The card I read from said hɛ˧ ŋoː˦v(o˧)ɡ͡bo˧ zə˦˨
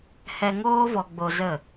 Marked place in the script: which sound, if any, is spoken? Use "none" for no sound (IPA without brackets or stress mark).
ɔ˧